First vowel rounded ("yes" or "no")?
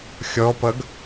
yes